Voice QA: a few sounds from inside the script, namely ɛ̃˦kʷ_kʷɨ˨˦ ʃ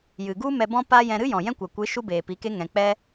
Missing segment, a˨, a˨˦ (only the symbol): a˨